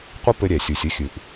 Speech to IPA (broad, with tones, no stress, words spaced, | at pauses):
qʷɐ˦pɘ˧ ɾʲɛ˨sʲu˨sʲɘ˦xʲɨ˨ʔ